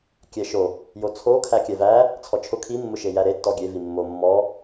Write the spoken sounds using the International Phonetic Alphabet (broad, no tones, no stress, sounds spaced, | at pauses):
kʲ ɛ ʃ o | j o t͡sʰ o kʰ æ kʲ ɛ v æ | t͡sʰ ɔ t͡ʃʰ ʊ kʰ i mː ʊ ʃ e j æ ɾ e tː ɔ ɡʲ e v i mː o mː ɔ